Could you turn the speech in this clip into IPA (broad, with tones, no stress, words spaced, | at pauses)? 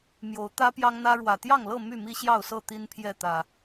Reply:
mjo˨˦ʊ̯ t̪ä˦ pjɑ˦ŋn̪ä˦ɻwä˨˩ t̪jɑ˥˨ŋlɤ˥˨ my˥˨mi˦ɕjɑ˥˨ʊ̯sɤ˥˨ t̪i˦npʰjɛ˥˨t̪ä˨˩